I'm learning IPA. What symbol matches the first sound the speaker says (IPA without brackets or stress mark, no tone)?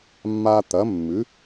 mː